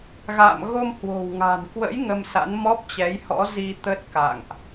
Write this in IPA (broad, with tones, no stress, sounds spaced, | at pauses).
ɣ a̰ː˧˨ m ɣ o˧ m h w o̤˨˩ w ŋ a̤˨˩ n k w ə̰˧˥ j ŋ ə˧ m s a̰˧˥ n m ɔ˦˥ p̚ t͡ɕ ɛ˨˦ j h ɔ̰˧˥ z i˧ t̪ ə˦˥ t̚ k a̰˧˨ ŋ ʔ